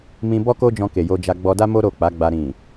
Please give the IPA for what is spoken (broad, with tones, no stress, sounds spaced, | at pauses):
m ĩ˧ b ɔ˦ k o˦ d͡ʒ ɔ̃˧ k e˨ j o˧ d͡ʒ a˧ ɡ͡b ɔ˧ d a˦ m o˦ ɾ o˦˨ k͡p a˨˦ ɡ͡b a˧ ɾ ĩ˨